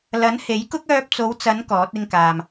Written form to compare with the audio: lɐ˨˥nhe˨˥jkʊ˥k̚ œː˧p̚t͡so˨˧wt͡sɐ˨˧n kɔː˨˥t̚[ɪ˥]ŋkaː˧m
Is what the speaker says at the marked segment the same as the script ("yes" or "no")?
yes